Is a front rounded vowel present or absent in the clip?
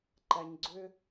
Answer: present